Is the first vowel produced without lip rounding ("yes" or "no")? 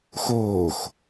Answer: no